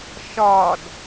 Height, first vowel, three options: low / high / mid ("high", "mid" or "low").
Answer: low